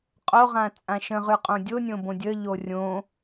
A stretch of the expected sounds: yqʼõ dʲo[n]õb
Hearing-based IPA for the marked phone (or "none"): nʲ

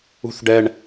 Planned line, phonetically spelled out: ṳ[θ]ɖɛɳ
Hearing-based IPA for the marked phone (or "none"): θ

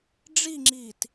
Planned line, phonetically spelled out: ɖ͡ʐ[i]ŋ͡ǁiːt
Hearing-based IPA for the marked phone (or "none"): i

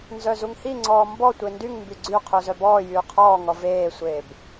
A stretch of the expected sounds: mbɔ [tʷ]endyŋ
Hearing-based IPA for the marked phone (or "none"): tʷ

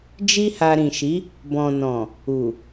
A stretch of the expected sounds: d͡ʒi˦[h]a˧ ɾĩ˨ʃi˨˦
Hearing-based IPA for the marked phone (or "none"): h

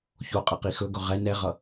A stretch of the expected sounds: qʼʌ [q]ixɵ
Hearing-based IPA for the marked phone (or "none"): q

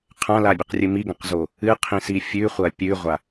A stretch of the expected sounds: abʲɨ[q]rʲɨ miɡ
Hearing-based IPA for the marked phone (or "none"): q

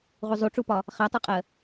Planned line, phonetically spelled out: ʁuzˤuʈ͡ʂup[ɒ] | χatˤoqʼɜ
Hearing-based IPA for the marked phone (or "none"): ɒ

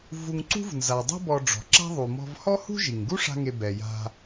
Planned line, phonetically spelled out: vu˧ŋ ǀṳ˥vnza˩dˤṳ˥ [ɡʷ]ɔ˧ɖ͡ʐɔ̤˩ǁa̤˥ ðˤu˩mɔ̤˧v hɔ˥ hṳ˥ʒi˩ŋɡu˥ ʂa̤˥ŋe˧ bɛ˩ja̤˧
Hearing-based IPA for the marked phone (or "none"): b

